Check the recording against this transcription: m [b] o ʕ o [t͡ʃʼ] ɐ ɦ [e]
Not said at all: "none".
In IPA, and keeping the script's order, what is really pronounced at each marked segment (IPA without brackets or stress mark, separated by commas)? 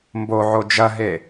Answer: b, d͡ʒ, e